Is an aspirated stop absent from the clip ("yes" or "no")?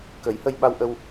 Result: yes